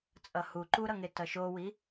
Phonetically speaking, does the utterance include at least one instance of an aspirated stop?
no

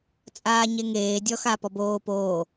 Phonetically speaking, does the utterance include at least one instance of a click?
no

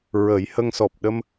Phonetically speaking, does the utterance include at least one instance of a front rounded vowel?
no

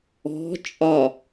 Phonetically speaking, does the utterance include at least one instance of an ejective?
yes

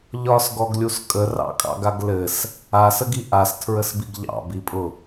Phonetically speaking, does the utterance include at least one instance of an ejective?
yes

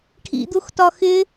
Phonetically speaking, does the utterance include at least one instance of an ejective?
no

